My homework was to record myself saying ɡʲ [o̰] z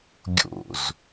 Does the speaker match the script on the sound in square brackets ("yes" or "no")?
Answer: yes